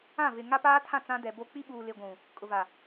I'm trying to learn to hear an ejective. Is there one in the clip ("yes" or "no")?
yes